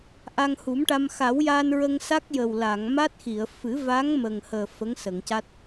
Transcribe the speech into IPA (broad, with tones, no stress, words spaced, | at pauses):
ʔa˧ŋhu˨˩˦mʈa˧m xa˨˩˦wja˧nɹə˧ŋ sa˦˥k̚ jə˨˩wla˨˩˨ŋ ma˦˥t̚xi˨˩˨ə̯ fɨ˨˩˦va˧˥ŋ mə˨˩ŋhəː˨˩ fə˧˥ŋsə˨˩˨ŋca˦˥t̚